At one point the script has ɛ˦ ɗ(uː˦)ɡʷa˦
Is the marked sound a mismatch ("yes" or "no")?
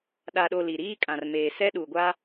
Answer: yes